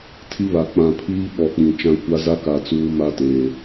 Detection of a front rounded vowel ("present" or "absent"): absent